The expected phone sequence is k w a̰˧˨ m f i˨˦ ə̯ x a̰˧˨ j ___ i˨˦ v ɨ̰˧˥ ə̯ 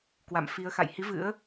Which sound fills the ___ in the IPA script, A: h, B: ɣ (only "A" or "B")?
A